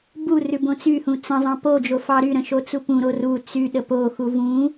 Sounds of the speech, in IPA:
b u r ʉ b õ t͡s y h ũ t͡s ə̃ zˤ ɑ̃ p o d͡ʒ o f ɑ ɾ y ɾ ə̃ ʃ o t͡s u p ũ ɾ o r u t͡s y ɗ ə p o x u v ũ

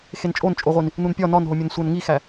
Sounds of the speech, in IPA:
x e n t͡ʃʼ o n t͡ʃʼ o ʁʷ i n | n u n pʲ ɒ n ɒ n ɦ o mʲ o n sʷ æ n ŋ i x æ

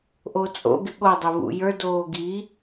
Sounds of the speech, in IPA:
ʔ o t͡sʼ o̰ ɡ ɪ ɠ o dˤ e β ṵ j ə˞ d oː ɡ i

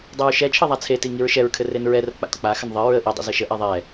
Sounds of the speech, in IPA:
dˤ e ɹ ʃ ɛ t͡ʃʰ ɘ ðˤ a t͡sʰ e t i ŋ i ɹ ʃ ɛ ɹ kʰ ɘ r e n ɹ ɛ r ə̰ k͡p a̰ t k͡p a x ə n ðˤ ɘ ɹ ə ʔ i dˤ ə̰ z ɘ ʃ ə ʔ ɛ ðˤ ɛ

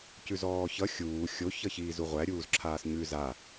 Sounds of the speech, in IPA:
c ʉ z ɔː ç ʌ xʲ uː xʲ o ç ʌ ç iː z u ʁʷ æ ɾʲ uː z ǁʰ aː s ɲ ʉ z a

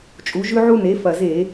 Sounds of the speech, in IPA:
t͡ʃʼ u˩˧ ʒ ʉ˧ ʕ u˧ n e˩˧ f ɐ˨˩ z e˧˩˧

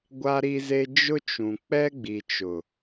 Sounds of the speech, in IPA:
ɡʷ a˦ ɾ i˦ z e˦ d͡ʒ ʊ˦ t͡ʃ ũ˨ k͡p ɛ˦ ɡ͡b i˨ t͡ʃ ʊ˨

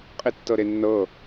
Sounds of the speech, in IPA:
qʼ i tː ɤ ɾ e nː ɤ

